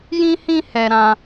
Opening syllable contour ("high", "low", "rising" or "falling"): high